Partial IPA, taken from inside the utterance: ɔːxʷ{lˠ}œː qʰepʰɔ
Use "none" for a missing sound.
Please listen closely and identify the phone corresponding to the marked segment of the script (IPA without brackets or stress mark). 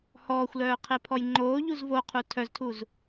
l